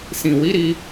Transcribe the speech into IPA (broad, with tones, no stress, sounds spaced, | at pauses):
s ĩ˨ w i˨˦ ɾ i˧